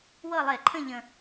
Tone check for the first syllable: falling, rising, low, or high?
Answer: falling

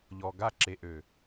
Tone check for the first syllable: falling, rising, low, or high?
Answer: low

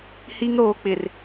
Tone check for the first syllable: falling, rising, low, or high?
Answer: high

